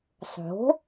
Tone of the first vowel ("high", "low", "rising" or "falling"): rising